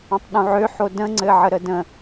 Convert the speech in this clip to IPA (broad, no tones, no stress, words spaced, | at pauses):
ə̃tˤɗũʕøħo də̃ŋ͡ǀɘʕəɾə də̃